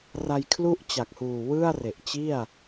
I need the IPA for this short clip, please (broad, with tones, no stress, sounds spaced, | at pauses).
r a˧ j kʰ l u˥˩ ʔ t͡ɕ a˨˩ k̚ h uː˨˩ w ɯ˥˩ a̯ r e˨˩ ʔ t͡ɕ i˥˩ a̯